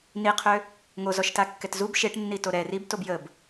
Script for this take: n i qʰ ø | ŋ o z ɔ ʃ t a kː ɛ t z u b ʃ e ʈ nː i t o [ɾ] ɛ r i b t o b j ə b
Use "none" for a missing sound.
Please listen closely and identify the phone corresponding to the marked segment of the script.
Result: ɾ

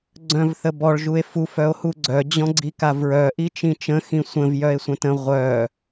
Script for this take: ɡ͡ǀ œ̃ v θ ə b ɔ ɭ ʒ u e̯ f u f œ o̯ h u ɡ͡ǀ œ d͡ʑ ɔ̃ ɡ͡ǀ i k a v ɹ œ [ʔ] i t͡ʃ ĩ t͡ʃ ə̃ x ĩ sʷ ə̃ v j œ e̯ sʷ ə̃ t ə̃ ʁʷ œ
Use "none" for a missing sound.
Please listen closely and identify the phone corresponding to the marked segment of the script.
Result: ʔ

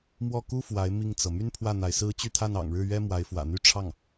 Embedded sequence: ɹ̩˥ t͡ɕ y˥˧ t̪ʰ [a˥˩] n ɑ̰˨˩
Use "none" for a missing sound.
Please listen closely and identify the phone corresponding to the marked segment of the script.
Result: a˥˩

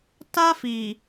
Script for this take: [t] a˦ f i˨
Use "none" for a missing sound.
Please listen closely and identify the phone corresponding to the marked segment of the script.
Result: t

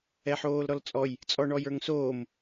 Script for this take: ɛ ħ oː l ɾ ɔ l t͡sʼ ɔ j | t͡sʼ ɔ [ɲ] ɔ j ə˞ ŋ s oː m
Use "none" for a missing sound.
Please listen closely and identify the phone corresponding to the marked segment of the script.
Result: ɳ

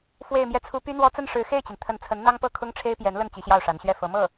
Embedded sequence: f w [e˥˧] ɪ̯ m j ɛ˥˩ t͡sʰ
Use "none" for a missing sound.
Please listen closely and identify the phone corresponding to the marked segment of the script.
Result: e˥˧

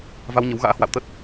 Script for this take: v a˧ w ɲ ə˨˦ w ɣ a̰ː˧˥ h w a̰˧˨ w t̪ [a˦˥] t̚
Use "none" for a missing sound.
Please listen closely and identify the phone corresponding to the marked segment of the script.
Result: ə˦˥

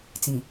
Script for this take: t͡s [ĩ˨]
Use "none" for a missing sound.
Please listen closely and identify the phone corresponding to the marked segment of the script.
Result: ĩ˨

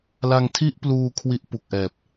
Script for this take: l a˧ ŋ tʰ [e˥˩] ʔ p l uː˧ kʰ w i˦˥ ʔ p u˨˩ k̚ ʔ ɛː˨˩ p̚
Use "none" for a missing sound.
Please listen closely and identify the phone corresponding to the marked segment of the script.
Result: i˥˩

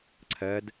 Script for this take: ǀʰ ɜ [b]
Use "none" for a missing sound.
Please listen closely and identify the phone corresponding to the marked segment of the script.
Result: d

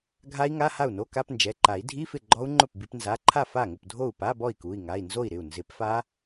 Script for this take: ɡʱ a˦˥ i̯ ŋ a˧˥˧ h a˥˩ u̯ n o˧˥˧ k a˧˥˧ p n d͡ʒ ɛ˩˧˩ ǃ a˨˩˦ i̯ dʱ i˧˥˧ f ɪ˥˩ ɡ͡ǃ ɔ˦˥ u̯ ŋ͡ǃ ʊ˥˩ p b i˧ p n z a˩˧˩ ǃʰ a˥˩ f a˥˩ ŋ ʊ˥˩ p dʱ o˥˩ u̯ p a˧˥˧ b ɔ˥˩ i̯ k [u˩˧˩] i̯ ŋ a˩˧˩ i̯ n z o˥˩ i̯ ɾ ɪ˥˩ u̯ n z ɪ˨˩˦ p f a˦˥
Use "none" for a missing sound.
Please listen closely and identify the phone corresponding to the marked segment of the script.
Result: u˩˧˩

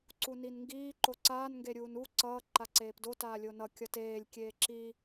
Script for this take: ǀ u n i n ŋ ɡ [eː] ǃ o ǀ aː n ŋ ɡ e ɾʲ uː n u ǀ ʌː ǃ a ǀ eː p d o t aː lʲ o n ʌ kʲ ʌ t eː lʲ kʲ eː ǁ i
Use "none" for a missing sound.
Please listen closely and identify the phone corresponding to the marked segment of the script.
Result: iː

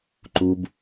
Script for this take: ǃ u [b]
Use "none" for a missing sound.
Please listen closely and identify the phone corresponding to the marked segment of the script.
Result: b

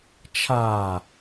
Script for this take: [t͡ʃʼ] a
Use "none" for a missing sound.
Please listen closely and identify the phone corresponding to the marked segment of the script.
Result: t͡ʃʰ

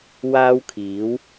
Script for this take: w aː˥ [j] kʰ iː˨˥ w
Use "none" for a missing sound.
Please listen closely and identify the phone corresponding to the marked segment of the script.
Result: w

